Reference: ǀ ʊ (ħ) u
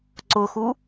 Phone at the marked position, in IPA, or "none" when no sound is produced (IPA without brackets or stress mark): x